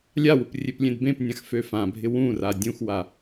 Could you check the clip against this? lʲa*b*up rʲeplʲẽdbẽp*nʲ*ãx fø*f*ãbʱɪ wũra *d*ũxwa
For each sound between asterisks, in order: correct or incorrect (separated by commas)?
incorrect, correct, correct, incorrect